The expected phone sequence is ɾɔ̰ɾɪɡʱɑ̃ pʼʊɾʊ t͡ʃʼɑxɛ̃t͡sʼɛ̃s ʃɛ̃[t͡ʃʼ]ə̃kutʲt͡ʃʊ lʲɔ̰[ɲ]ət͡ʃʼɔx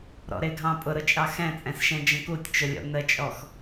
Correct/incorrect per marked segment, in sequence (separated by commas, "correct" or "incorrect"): incorrect, incorrect